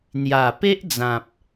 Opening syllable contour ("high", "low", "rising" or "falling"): low